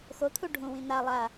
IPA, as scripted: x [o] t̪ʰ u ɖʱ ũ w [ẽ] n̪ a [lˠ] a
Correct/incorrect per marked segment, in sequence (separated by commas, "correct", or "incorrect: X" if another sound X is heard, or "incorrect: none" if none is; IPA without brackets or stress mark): correct, incorrect: ĩ, correct